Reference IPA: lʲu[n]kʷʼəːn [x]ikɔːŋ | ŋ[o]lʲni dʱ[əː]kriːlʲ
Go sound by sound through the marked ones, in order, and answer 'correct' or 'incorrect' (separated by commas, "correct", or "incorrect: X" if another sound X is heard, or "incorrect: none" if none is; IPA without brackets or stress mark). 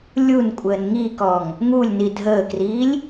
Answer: correct, incorrect: ŋ, incorrect: u, correct